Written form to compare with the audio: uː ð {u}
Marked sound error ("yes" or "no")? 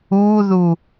no